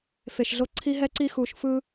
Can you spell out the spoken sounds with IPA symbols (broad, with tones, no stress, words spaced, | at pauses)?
fe˨ʃɮo˧ ǀʰi˦ɦɛ˦ǀi˦ xu˨ʃfɯ˧